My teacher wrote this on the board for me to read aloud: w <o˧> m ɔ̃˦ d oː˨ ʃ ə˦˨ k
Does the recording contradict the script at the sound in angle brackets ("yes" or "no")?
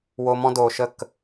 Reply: no